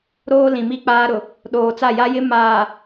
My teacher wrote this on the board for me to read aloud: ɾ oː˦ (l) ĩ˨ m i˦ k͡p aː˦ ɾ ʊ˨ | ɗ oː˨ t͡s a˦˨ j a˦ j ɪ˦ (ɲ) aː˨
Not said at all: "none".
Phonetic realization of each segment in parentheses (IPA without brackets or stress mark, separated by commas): l, m